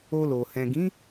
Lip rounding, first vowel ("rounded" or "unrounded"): rounded